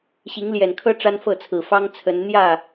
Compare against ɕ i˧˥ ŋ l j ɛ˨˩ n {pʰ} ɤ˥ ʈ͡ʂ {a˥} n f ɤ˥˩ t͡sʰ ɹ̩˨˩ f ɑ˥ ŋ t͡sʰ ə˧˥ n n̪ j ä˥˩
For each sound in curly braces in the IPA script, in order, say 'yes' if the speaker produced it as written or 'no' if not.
no, yes

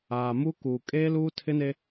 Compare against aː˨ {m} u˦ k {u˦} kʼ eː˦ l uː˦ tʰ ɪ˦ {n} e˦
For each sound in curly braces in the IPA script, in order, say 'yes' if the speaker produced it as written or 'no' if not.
yes, no, yes

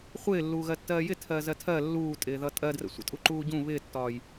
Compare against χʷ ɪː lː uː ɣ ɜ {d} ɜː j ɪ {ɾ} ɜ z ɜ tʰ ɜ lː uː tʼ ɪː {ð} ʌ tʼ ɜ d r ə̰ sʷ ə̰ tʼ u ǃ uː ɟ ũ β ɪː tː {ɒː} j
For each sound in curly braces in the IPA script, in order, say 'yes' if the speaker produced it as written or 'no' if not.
no, no, yes, yes

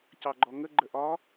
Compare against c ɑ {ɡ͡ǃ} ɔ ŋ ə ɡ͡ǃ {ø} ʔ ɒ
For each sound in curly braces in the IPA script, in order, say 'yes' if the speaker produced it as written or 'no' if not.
yes, no

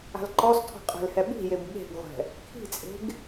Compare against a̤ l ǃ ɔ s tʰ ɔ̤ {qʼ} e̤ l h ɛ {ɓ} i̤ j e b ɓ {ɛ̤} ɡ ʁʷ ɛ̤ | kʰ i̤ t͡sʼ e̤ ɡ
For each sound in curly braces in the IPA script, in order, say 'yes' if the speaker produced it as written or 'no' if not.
yes, yes, no

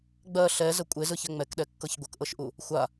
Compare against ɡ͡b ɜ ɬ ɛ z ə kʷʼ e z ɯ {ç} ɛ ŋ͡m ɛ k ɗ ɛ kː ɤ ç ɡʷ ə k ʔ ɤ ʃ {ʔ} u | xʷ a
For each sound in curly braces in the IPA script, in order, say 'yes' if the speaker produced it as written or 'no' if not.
yes, yes

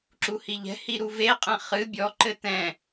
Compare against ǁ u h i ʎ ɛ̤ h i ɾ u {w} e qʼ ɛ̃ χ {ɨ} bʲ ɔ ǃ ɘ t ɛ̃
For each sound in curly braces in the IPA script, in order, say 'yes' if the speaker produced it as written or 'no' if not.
no, yes

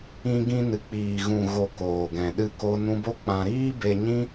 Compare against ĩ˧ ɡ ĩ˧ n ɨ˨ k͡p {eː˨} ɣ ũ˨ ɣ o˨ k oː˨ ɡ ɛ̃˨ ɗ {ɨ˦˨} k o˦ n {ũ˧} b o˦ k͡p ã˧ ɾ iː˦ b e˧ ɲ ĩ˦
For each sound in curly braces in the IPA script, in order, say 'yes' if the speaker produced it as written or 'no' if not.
no, yes, no

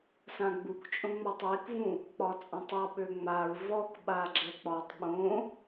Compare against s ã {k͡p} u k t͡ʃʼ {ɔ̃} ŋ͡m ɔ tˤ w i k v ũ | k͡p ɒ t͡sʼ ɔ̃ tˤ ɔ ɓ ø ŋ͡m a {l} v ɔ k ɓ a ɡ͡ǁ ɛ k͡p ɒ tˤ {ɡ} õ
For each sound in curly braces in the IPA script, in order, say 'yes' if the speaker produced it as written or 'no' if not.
no, no, no, no

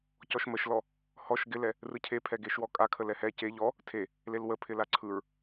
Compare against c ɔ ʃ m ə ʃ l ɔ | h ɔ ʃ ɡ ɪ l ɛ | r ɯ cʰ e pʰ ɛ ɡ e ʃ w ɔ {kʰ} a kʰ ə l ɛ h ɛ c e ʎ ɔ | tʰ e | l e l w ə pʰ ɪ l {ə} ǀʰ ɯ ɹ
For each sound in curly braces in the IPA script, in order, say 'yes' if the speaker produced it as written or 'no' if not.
no, no

